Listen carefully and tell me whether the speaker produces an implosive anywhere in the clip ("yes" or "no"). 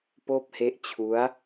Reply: no